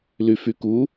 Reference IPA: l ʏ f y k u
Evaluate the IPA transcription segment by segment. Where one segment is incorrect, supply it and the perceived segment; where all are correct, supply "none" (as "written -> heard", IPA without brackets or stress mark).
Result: ʏ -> y